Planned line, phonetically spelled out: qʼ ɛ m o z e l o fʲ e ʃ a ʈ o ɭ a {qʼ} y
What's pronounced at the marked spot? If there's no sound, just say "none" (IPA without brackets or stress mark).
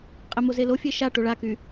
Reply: k